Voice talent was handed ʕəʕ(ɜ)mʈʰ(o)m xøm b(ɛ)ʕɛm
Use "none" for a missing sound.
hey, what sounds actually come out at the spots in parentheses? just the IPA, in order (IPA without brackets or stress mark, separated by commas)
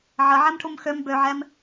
ɛ, u, ø